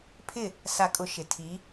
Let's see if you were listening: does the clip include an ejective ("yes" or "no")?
yes